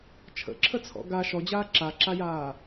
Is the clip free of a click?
no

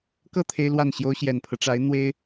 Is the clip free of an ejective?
yes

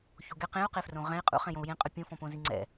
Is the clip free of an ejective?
no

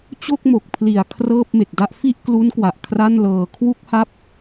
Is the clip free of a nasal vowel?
yes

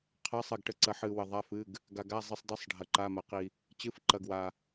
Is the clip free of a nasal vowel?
yes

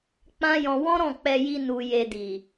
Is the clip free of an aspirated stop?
yes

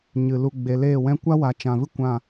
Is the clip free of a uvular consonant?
yes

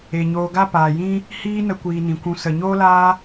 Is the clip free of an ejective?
yes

